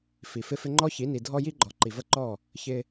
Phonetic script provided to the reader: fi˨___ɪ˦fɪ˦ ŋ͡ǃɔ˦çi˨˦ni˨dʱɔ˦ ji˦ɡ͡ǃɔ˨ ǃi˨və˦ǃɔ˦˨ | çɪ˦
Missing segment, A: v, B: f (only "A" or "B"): B